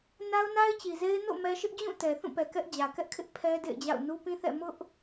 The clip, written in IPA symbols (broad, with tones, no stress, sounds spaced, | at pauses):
n a˦ ʊ̯ n a˦ ɪ̯ t͡ɕ i˨ z e˦ ɪ̯ n o̰˦˨ m ɛ˦ ʃ ɪ˦ ʔ d͡ʑ ũ˦˨ t ɛ˨ θ ũ˦˨ p ɛ˨ k ɛ˦ ʔ d͡ʑ ä˨ k ɛ˦ ʔ kʰ ɪ˦ ʔ pʰ ɛ˦ d ḛ˦˨ ɪ̯ d͡ʑ a̰˦˨ ʊ̯ n u˦ p ĩ˦ θ ɛ̰˦˨ m ʊ˦ ʔ